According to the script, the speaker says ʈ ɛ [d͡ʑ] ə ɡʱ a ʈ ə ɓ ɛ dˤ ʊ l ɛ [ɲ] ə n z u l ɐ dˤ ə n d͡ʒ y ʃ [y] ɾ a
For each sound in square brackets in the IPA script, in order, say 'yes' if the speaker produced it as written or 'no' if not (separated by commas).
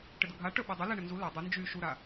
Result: no, no, no